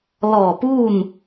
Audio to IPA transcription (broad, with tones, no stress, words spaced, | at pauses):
lɔː˧˩ puː˥˨n